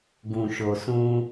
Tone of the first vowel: low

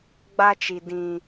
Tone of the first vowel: high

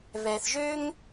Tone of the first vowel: low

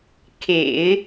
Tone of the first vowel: low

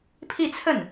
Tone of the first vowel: falling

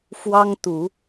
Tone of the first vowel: high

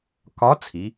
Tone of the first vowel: rising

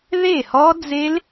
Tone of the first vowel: falling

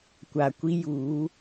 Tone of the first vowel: low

